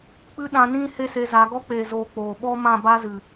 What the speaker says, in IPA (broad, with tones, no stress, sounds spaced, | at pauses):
k͡p ɨ˦ ɗ ã˧ n ĩ˦ h e˦ s e˧ z a˨˦ ɡ ɔ˧ k͡p eː˨ z oː˨ k͡p oː˨ ɓ ɔ˦ m ã˦˨ b a˦ z ɨ˨